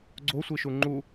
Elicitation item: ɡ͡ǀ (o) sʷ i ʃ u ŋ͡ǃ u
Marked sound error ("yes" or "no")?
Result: no